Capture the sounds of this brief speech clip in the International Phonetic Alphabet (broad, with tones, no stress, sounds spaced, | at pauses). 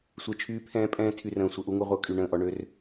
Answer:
sʷ e˦˨ t͡ʃʰ yː˦ pʰ ɛ̃ː˦ pʼ ɛ̃ː˦ tʰ y˦ r ə̃ː˦˨ sʷ ə˦ ʔ u˦ ŋ u˦ ʁʷ œ˦ kʼ y˦˨ ɳ ə̃ː˦˨ ʔ ɔ˦ ɳ ø˦ r